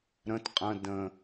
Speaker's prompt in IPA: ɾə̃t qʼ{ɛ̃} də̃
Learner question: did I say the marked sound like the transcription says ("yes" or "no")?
no